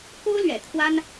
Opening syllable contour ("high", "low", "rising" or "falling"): high